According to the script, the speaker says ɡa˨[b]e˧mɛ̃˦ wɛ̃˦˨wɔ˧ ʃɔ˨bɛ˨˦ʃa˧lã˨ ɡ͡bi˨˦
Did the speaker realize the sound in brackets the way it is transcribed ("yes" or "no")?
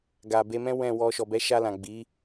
yes